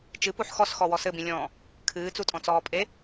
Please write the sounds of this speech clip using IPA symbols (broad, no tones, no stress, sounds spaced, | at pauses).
t͡ʃ ɨ p u ħ x ɔ s x ɔ w ɔ s ɘ b ĩ lʲ ɔ̃ː | kʰ ɨː t͡s u tʼ ɔ̃ t͡s ɔː pʼ e